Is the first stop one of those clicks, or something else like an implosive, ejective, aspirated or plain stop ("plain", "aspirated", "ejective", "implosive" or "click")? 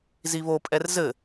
ejective